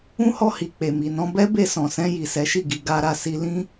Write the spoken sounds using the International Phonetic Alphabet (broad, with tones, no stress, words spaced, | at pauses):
ũ˦hɔ˧hi˨k͡pe˨ mi˨ nɔ̃˧bɛ˦ be˧sɔ̃˨sɛ̃˧ ji˨sɛ˨˦ʃi˦˨ɡi˧ ɡa˧ɾa˧ si˧lĩ˦